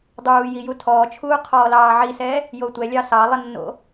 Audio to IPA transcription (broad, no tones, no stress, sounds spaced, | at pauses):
dˤ uː j i j u tʰ ɔː t͡ʃʰ uː qʰ ɔː l ɑː ʕ i s ɛː | j o tʷ ɛ lʲ ɑ s ɑ lˠ ə nː o̰